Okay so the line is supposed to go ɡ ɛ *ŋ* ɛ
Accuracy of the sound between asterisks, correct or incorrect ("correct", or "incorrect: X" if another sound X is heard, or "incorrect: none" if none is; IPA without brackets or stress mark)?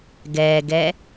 incorrect: ɡ